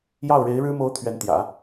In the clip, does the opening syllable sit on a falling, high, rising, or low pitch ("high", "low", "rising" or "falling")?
falling